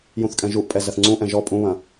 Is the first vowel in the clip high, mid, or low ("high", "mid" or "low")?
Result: high